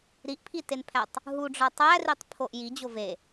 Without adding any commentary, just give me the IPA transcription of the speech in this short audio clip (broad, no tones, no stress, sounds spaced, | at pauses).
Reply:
ɾ i ʔ pʰ i t e n pʰ æ tˤ | ɦ u ɖ͡ʐ ɒ tˤ æ r i tˤ pʰ o ʔ j i d͡ʑ o v e